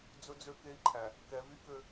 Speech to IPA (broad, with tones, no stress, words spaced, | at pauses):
d͡zɵ˦d͡zø˦ke˦i̯ǃʰæ˨ | kɛ˨˦vy˦kø˦